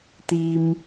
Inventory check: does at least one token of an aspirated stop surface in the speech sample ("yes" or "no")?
no